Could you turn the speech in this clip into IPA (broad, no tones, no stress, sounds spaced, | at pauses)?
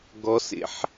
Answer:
ɡ ɔ s ḛ ħ